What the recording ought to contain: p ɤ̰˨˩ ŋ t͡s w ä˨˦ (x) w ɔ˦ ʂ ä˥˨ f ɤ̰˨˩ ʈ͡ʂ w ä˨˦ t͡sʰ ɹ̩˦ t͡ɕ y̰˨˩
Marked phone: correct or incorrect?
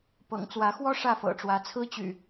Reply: correct